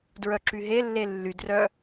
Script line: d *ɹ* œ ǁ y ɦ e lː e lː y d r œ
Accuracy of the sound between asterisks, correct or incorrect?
correct